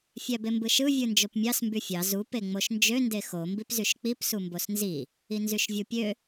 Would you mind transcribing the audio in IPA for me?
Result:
fʲ æ b e m b ɯ ʃ ɯ vʲ ɯ n d͡ʒ o p mʲ ɑ s m b y fʲ ɑ z u p e ŋ͡m o ʃ n d͡ʒ ø n d e x o m b i p z y ʃ k͡p i p s u m b o s n z i | i n z y ʃ vʲ u pʲ ø

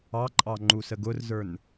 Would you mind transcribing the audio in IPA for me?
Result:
ɑ ǃʼ ɑ ŋ͡ǃ u s ə ɡ ʊ r z ə˞ n

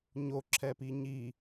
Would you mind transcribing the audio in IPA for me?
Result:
ɲ o ǁʰ ɛ p i ɲ i

